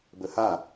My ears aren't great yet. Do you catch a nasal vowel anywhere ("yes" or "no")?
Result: no